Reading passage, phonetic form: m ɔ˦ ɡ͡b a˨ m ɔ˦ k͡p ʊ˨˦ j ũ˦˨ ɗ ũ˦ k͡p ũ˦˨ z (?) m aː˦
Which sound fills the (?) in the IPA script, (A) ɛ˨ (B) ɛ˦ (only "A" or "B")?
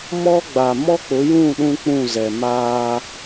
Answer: A